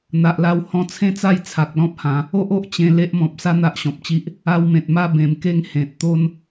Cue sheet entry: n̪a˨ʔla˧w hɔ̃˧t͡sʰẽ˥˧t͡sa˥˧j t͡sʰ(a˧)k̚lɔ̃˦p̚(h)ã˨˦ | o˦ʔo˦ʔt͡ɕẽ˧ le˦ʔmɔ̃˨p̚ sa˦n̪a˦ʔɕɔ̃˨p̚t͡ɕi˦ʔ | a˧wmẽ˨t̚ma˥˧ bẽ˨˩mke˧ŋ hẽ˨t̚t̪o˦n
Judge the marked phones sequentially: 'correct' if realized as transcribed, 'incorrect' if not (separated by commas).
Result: incorrect, correct